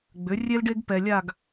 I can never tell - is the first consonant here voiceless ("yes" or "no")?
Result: no